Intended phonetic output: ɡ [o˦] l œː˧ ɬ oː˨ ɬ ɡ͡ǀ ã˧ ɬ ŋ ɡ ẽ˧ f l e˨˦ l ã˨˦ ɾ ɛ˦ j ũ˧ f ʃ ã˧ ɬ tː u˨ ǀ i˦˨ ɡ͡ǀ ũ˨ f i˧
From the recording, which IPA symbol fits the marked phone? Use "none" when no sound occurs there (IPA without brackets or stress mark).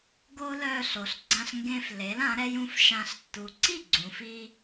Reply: o˦